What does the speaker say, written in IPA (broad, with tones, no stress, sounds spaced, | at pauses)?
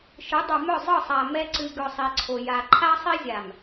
ʃ ɯ˨˦ dˤ o˨ m œ˦˨ zˤ ɯ˦˨ sˤ a˨ m ɛ˦ ǀ ɨ˨ ɡ œ˨ sˤ i˨ ǀʰ o˨ j a˨ ǃʰ a˦ sˤ i˦ zʲ a˨ m